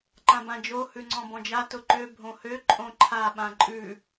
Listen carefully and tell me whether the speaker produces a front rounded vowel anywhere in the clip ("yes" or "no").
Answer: yes